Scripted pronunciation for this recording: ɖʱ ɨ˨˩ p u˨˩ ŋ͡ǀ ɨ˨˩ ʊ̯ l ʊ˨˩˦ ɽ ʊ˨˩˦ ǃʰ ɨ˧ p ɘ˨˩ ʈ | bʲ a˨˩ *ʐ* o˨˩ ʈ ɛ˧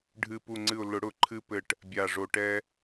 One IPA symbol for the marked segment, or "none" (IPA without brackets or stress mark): ʐ